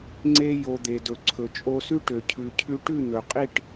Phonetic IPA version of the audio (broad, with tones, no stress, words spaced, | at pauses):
ŋ͡ǀe˦ jo˧d̪e˨dɵ˨ ǀʰɵ˨t͡ʃʼo˧sʉ˦ ʈø˨cʰʉ˨cʰʉ˧ ʈʉ˦˨n̪ɵ˨qʼi˦˨ʈ